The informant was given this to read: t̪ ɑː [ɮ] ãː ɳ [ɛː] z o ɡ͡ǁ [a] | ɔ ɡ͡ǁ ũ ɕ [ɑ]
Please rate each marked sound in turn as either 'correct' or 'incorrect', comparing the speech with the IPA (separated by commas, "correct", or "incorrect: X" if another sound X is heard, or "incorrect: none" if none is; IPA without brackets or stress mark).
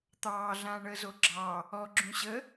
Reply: correct, incorrect: əː, incorrect: ɑ, incorrect: ə